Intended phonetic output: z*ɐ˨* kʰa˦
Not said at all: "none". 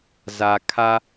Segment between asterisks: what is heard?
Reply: a˨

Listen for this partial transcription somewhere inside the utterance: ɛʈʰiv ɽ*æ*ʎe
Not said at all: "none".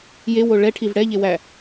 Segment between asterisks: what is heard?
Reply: ɛ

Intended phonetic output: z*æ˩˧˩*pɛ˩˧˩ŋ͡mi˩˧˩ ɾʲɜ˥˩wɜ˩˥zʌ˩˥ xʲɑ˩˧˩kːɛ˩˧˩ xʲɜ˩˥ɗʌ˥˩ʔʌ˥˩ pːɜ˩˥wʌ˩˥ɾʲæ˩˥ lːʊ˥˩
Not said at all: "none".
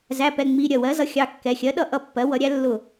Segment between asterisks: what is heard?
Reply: æ˩˧˩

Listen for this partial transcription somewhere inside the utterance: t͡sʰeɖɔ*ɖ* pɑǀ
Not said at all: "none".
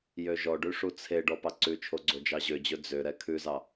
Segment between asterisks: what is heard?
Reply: none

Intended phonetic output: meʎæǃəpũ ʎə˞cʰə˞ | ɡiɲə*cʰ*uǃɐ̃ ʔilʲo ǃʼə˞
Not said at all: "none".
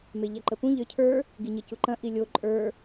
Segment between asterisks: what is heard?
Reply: c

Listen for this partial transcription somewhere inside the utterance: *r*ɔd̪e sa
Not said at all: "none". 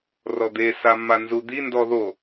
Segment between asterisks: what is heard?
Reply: r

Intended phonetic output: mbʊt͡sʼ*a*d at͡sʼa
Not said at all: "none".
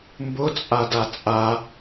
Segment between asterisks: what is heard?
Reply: a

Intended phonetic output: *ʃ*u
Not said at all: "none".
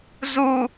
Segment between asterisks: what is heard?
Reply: z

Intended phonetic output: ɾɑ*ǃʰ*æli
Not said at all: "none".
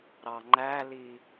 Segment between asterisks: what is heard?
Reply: ŋ͡ǃ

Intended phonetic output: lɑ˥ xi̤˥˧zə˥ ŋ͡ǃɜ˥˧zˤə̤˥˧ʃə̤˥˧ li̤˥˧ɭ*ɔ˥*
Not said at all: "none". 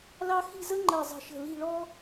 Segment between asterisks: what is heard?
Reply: ɔ˥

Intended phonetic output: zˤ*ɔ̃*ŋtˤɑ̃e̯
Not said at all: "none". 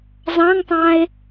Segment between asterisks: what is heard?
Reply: ɑ̃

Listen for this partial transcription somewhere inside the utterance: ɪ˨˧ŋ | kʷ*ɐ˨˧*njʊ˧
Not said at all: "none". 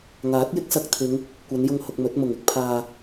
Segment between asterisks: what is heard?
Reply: ɐ˨˧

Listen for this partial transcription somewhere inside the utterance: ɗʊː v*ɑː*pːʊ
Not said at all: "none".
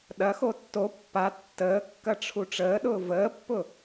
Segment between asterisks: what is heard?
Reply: əː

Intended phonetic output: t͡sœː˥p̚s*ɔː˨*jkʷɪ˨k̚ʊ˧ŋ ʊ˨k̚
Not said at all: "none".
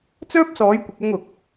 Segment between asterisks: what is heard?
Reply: ɔː˨˥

